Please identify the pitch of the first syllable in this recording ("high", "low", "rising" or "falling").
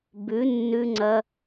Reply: rising